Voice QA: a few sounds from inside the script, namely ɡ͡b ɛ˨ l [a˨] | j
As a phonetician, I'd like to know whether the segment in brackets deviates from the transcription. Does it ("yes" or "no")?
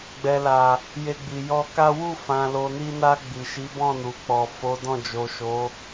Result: no